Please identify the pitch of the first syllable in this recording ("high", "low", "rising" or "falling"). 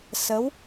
rising